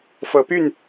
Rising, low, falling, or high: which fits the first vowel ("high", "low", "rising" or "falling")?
rising